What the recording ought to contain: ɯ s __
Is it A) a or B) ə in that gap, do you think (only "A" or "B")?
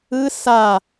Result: A